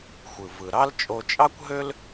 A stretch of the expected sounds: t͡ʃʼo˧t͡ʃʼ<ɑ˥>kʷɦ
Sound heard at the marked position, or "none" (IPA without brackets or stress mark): ɑ˥